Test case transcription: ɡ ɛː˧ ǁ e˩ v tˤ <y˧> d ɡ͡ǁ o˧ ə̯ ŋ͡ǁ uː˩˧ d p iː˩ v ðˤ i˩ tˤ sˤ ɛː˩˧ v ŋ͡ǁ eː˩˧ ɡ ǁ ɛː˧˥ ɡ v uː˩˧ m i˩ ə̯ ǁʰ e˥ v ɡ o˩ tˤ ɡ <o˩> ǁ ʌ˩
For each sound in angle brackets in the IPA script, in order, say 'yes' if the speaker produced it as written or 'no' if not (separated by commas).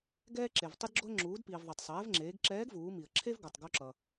no, no